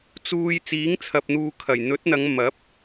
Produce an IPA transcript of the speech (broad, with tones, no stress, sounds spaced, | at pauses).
t͡s uː˧ j t͡s iː˨˥ ŋ t͡sʰ ɐ˨ p̚ n̪ uː˨ kʰ ɐ˨˩ j n̪ ɵ˨˥ t̚ n̪ ɐ˨˧ ŋ m ɐ˨˥ p̚